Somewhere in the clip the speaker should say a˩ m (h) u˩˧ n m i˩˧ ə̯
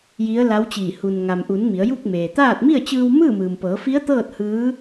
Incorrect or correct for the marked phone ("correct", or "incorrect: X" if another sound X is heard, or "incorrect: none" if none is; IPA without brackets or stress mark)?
incorrect: ʔ